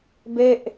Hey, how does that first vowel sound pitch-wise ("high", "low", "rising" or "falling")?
falling